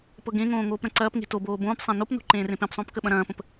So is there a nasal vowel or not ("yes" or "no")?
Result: yes